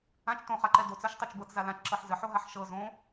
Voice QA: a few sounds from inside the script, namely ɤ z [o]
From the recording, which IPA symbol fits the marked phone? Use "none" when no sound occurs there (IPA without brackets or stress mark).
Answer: õ